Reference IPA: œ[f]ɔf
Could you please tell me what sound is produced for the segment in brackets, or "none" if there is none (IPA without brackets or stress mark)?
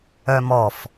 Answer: m